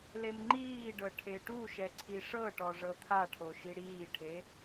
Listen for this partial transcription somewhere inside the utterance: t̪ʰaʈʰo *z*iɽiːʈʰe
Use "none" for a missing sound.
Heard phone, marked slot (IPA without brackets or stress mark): ʃ